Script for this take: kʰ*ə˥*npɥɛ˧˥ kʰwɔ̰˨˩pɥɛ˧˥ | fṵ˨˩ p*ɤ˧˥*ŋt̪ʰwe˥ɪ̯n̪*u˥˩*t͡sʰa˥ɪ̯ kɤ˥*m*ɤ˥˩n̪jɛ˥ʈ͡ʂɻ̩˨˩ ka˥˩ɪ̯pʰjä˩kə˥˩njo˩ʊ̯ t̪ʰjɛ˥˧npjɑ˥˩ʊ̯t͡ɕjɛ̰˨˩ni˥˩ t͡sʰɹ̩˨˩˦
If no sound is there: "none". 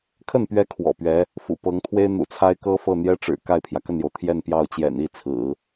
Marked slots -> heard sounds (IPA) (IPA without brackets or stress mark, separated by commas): ə˥˩, ɤ˧˥, ṵ˨˩, f